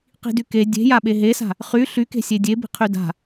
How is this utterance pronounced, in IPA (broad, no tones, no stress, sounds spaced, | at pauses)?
q i̤ d y k e dʲ e̤ j a ɓ e ɦ e s a̤ | χ y ɬ y k e̤ sʲ e dʲ e b i̤ qʰ y d a̤